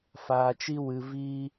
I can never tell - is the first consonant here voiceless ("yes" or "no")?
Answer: yes